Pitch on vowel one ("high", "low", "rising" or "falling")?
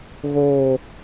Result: low